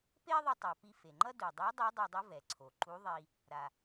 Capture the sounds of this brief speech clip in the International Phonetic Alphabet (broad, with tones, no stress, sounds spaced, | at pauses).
p e˥ ðˤ i˧ tˤ a˩ p i˧ f e˩ ŋ͡ǃ ʌ˥ d u˩ dˤ e˧˥ dˤ ɯ˧˥ dˤ ɛ˧ dˤ o˧˥ v ɛ˩ ǀʰ o˩ ǃ u˧˥ ðˤ i˧ | ɾ a˩